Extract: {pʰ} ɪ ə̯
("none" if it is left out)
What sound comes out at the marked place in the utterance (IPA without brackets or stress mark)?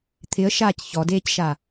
t̪ʰ